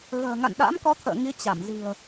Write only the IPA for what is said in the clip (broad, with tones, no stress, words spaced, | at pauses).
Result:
ɣə̤ː˨˩ ŋa̰˧˨nɗa̰˧˥mkɔ˨˦t̪ʰə̰ː˧˨ ŋi˨˦ t͡ɕa˧˩mzi̤˨˩ə̯